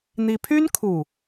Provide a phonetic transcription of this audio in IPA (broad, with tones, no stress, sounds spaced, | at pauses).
n̪ i˦ pʰ y˦ n kʰ u˨˩